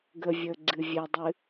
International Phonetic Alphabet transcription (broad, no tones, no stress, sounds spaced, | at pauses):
ɡ ə vʲ əː ɡ͡ǀ ɨ vʲ ɛ dˤ ɨ